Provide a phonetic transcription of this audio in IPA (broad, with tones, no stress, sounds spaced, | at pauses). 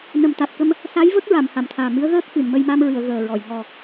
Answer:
n ə˨˩ m t̪ a˨˩ t̚ k ə˧ m | s a˧˥ j v ə˦˥ k̚ ɹ a˨˩˨ m h a˨˩˨ m t̪ʰ aː˨˩ m ɨ˧˥ ə̯ ɣ əː˦˥ k̚ x ɨ˨˩˨ n m ə˧ j m a˧ m ɹ ɨ˨˩˨ ə̯ ɣ əː˨˩ ɹ ɔ˨˩˨ j ŋ ɔ˨˩